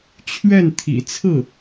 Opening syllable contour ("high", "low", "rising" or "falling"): falling